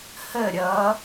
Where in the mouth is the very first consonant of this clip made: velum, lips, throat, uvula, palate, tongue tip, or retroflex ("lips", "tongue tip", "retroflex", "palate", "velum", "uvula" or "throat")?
throat